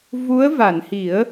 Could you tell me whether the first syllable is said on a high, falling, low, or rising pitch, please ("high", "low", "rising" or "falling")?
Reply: rising